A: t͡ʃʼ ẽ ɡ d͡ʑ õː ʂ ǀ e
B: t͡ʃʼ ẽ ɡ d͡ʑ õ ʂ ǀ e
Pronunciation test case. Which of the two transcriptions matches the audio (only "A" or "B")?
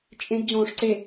A